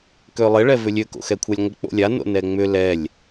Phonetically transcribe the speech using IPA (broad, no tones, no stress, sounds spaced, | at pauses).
k ø lˠ ɪ ɭ ɛ v ʏ lʲ ø k o̰ x ɛ kʷʰ a lʲ ŋʷ ɪ k͡p o̰ lʲ a n o̰ n ɛ ŋ͡m ʏ l ɛ lʲ